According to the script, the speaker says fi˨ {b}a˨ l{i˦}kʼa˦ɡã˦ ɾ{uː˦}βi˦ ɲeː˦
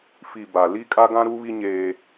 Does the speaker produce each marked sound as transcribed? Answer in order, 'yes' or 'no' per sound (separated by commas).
yes, yes, no